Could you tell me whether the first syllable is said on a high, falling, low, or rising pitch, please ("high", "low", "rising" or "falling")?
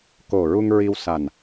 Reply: low